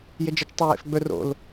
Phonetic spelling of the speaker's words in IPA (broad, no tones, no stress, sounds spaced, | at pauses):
j e d͡ʒ ɐ t͡ʃ tˤ o j ḛ f ɡ͡b ɵ r o̰ l